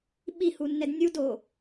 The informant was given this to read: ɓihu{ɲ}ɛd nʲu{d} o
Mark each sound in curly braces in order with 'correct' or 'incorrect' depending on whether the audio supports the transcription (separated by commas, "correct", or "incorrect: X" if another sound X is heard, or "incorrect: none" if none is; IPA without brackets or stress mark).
incorrect: nː, correct